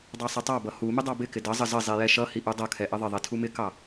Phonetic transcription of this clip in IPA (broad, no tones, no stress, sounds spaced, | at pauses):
dˤ ɑ sˤ ɛ tˤ ɑ b ʌ h u m ɪ dˤ ɑ b ɪ k ɪ d ʌ zˤ ə z ə zˤ i j ɛ ʃ ʌ h i ʔ u dˤ ʌ kʰ ɛ ʔ ə ðˤ ɪ ðˤ i tʰ u m ɪ k ɑ